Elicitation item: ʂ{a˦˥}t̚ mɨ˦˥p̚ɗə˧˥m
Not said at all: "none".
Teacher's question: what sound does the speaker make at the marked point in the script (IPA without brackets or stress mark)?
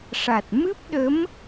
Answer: a˨˩